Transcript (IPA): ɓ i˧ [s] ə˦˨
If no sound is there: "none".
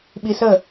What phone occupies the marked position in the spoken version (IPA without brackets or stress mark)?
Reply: s